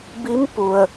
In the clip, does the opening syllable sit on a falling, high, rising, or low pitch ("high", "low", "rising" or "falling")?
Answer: rising